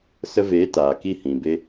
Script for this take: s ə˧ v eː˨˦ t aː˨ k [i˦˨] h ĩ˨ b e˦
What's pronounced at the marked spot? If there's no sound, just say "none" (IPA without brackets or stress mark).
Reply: i˦˨